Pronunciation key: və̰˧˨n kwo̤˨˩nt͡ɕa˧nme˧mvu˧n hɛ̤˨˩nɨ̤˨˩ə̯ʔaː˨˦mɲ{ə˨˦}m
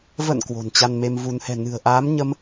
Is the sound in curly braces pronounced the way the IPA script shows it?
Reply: no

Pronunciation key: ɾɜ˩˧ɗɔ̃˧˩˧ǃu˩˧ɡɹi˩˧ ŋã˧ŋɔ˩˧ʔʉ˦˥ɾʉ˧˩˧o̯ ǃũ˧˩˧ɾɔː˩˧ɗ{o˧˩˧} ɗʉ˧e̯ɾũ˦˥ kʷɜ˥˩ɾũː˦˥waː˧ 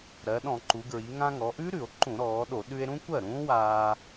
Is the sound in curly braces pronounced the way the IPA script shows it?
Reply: yes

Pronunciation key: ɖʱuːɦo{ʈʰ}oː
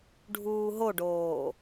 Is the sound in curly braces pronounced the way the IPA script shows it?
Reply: no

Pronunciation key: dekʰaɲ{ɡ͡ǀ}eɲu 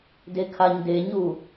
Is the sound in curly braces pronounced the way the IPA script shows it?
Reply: no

